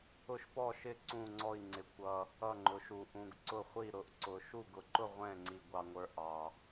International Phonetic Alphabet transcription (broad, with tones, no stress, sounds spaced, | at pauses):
ʊ˥˧ ʃ p ɔ˥˧ ʃ ɪ˥˧ ǀ ũ˥˧ ŋ͡ǀ ɔ˥˧ i̯ ŋ͡ǀ ɪ˧ kʷ ʌ˧ | ʌ˥˧ ŋ͡ǃ ʊ˧ ʃ u˧ ʔ ũ˧ ɡ ǀ ʊ˥˧ χʷ i˥˧ ɾ ʊ˧ ʔ ǀ ʊ˧ ʃ u˥˧ ɡ ʊ˧ ǃ ʊ˥˧ ʁʷ ɛ̃˥˧ ŋ͡ǀ i˧ ɡʷ ɑ˧ ŋʷ ə˞˧ ʔ ɑ˧